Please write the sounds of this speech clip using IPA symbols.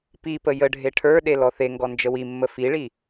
pipə jəɖʱe ʈʰə˞ɗe lɔθeŋɡɔ nd͡ʒəwimːə fiɭi

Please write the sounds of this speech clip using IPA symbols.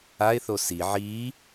aɪ̯θo si ʕi

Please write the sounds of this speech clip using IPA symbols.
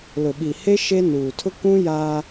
lʊ˨ɓi˨he˦ ʃe˦nuː˨ tʰʊ˦kũ˦ jaː˦

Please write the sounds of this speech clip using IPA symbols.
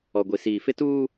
ɔ˨ɡʷi˨siː˨ fɪ˦tuː˦

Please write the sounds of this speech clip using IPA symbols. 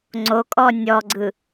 ŋ͡ǀokʼɔ nʲɔɡ͡ǀɯ

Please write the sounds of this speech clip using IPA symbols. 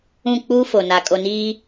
ũ˦˨k͡puː˦ fo˨na˨ kʼo˨niː˦

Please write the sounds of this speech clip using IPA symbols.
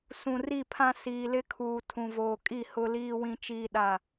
sũ˨ri˦˨pʰã˦ siː˨lɪ˦kʰuː˨ tʰũ˨voː˨kʼi˦˨ hʊ˦liː˦wĩ˦ t͡ʃiː˦ɗa˦˨

